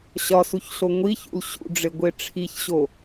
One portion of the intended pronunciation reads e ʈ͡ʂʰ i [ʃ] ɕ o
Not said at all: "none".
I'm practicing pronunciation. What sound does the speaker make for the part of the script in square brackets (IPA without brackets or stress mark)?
ç